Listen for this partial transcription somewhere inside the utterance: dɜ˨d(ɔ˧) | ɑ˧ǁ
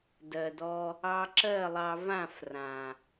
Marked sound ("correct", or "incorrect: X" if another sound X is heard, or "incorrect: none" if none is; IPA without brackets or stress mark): correct